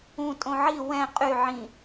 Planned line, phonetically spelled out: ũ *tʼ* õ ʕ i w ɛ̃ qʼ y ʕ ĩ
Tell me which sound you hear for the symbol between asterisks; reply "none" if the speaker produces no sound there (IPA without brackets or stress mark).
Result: tʼ